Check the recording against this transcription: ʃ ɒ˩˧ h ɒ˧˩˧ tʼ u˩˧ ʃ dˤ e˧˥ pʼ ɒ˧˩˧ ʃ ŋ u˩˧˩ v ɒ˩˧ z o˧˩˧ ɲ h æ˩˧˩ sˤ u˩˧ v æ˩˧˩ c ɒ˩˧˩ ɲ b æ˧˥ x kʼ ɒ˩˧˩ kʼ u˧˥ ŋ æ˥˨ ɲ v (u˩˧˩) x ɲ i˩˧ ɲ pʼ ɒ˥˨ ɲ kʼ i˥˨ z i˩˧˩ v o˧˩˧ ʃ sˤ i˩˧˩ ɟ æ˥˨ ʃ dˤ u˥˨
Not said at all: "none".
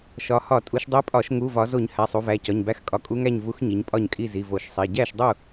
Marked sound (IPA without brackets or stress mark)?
u˧˥